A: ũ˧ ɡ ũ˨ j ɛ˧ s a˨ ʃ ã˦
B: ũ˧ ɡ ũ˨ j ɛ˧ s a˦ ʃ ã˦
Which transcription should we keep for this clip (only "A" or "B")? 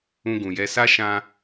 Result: B